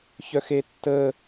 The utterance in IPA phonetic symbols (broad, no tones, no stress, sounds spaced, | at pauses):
ç œ x e tː ə